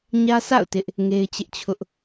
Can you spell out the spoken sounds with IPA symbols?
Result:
ɲ ä˦ s a̰˦˨ ʊ̯ t ɪ˦ ʔ | ŋ e˦ ɪ̯ t͡ɕ ɪ˦ ʔ t͡ɕʰ ʊ˦ ʔ

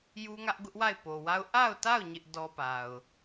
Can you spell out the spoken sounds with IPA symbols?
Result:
j u˦ ŋ ä˦ ʔ ɡ ʊ˦ ʔ w a˦˨ ɪ̯ p o˨ w a˦ ʊ̯ ʔ a˦˨ ʊ̯ t a˦˨ ʊ̯ ɲ ɪ˦ ʔ d ɔ˦ p a˨ ʊ̯

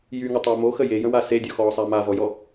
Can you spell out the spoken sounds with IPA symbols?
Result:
j y ŋ ə tˤ əː m o x ə j e j ə̃ w a s e dʲ ɔ x ɔː sˤ a m a v ɔ j ɔ

